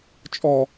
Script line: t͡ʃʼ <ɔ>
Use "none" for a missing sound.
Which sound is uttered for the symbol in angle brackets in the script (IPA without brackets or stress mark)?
ɔ